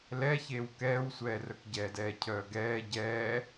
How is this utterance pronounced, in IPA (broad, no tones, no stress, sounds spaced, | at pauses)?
l ɛ ç eː w k ɛː w sʷ ɛː r œ k ɟ ɛː d ɛː cʰ œː ɡ ɛː ɟ ɛː